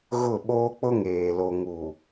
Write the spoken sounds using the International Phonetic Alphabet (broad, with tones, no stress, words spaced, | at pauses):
ɣʊ˦˨ ɓoː˦k͡pʊ˦ŋeː˨ lo˨ŋu˨